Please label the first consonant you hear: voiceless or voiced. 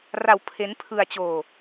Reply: voiced